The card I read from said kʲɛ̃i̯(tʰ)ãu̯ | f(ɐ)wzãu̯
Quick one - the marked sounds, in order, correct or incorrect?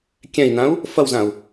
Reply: incorrect: n, correct

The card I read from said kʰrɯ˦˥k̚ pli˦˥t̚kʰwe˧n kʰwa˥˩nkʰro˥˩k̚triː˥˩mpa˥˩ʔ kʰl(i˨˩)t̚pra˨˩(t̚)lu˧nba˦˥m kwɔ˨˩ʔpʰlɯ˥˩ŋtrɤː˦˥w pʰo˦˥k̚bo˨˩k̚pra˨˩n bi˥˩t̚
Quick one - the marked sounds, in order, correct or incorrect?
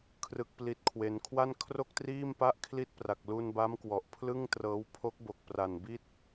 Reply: incorrect: i˥˩, incorrect: k̚

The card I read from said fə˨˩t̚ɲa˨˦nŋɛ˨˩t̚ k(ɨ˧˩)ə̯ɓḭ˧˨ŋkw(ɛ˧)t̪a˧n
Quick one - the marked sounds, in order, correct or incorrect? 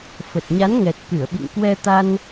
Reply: correct, correct

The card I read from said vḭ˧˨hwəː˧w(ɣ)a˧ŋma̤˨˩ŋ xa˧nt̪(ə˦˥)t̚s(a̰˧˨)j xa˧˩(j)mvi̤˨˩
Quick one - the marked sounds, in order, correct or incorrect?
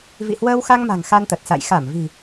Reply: incorrect: x, incorrect: ə˨˩, correct, incorrect: none

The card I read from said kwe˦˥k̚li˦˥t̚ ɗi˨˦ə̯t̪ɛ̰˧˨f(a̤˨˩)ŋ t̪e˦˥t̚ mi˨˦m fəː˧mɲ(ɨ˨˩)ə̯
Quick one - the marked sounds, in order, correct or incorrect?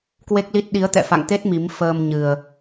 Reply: incorrect: a̰˧˨, correct

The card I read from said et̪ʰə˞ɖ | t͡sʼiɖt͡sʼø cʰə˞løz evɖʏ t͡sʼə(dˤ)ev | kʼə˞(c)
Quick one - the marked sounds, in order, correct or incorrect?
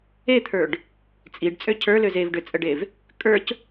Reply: incorrect: ɖ, correct

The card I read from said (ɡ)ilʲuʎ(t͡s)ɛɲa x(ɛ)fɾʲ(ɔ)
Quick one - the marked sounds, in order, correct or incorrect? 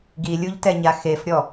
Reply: correct, incorrect: t, incorrect: e, correct

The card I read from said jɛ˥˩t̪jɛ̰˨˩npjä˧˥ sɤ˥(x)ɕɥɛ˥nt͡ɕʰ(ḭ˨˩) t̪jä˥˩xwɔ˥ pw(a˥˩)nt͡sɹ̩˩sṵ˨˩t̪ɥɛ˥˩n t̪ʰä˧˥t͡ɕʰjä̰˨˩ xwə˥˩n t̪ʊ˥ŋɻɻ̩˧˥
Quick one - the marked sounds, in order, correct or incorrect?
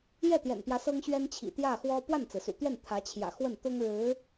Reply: incorrect: ŋ, correct, correct

